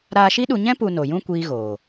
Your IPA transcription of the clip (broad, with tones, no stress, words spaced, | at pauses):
ɾaː˧ʃi˦ɗu˧ɲɛ̃˦ pu˧ no˨jũ˦ kʷiː˦ɣoː˨